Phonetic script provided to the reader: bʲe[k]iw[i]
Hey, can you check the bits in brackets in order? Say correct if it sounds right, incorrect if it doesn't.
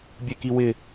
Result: correct, incorrect

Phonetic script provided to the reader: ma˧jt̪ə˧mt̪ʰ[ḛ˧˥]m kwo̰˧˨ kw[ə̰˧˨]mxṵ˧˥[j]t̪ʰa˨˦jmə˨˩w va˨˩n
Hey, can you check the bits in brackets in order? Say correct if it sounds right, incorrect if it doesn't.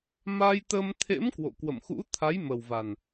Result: correct, correct, incorrect

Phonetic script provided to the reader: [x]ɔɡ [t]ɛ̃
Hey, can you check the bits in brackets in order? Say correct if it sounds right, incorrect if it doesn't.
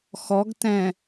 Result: correct, correct

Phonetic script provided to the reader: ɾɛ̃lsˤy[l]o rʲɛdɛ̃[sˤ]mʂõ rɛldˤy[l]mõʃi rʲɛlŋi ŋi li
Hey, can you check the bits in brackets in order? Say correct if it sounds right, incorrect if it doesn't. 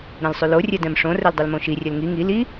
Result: correct, incorrect, correct

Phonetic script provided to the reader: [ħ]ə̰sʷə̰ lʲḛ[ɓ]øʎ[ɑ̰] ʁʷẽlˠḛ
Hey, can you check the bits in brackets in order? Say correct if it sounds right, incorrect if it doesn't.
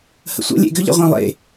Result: incorrect, incorrect, incorrect

